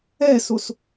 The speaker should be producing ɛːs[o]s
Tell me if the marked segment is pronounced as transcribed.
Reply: yes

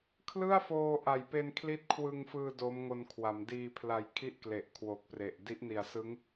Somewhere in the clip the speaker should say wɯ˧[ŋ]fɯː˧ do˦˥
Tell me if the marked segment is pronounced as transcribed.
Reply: yes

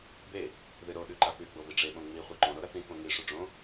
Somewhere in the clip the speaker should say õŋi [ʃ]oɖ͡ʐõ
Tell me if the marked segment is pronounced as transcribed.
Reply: no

